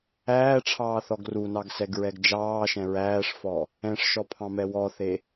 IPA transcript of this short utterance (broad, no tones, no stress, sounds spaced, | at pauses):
æː ʈ͡ʂʰ ɑː θ ɔ ɡ r u n ɑ ɡ s ɛ ɡ ɹ ɛ ɡ d͡ʒ ɑː ʃ ɛ̃ ɹ æː ʂ f ɔ | ɛ̃ ʂ ʃ ɔ pʰ ɑ̃ m ɛ w ɔ θ e